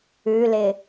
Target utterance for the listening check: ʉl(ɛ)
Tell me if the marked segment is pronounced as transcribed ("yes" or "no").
no